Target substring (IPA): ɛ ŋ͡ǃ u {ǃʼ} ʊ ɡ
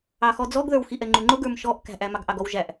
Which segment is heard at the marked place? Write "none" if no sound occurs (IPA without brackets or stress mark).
ŋ͡ǃ